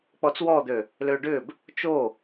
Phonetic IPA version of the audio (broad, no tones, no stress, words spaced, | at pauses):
k͡pɔt͡swɔd̪ø | løɖʏb | t͡ʃo